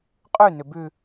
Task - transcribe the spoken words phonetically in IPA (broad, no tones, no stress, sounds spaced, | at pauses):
qʼ ʉ n ʏ b ʉ